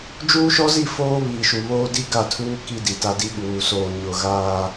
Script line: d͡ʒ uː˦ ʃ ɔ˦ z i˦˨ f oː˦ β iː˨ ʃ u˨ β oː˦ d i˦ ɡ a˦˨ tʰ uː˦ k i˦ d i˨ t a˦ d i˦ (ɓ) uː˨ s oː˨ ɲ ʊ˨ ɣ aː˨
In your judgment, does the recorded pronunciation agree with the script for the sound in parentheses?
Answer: yes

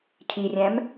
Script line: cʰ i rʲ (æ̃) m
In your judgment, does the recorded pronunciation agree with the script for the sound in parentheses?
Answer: yes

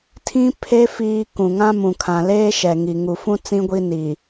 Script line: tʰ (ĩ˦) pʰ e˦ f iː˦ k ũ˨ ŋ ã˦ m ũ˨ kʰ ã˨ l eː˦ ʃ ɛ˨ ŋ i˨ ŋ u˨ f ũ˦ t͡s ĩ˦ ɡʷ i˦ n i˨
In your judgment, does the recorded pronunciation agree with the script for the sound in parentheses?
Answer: yes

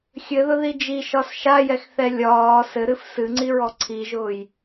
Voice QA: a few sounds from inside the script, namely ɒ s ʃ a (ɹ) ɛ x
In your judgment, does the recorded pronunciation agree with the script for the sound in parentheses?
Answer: no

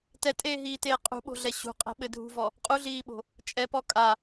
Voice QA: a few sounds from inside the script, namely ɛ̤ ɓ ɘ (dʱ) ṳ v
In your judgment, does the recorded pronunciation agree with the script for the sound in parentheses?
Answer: yes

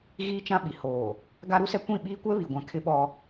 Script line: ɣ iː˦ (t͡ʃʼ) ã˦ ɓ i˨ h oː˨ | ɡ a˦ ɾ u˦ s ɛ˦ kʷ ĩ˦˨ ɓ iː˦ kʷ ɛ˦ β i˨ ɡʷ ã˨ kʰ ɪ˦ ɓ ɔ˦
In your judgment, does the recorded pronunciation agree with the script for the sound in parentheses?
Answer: no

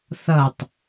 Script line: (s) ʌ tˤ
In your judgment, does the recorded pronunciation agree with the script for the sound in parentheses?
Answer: no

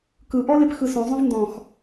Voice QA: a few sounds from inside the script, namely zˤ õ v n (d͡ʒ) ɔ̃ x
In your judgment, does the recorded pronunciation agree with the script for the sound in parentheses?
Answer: no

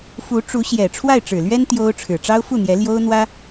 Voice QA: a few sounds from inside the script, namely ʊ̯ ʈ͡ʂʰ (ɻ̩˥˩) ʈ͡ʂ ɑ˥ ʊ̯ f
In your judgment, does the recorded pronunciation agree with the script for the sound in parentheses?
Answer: no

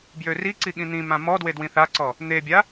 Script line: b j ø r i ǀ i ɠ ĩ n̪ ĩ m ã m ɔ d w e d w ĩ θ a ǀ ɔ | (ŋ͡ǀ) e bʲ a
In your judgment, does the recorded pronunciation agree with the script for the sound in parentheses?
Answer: no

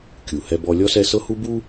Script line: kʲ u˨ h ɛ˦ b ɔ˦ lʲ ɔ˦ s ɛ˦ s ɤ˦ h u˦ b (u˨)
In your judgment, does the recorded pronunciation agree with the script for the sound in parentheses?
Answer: no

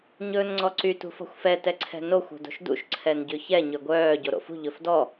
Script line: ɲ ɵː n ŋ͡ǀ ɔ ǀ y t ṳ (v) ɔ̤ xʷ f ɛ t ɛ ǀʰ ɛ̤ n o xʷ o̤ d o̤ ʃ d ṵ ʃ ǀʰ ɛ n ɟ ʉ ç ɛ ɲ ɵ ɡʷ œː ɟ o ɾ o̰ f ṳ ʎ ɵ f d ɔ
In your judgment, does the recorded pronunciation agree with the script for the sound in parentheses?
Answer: no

